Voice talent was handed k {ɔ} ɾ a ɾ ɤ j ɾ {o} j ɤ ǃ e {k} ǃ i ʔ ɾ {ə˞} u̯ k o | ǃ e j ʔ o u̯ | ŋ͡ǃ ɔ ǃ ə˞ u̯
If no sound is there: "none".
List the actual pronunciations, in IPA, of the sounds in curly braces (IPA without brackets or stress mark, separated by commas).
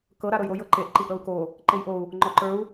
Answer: ɤ, o, ʔ, ɤ